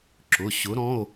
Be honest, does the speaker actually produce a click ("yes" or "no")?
yes